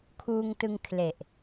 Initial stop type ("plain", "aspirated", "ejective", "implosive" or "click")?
aspirated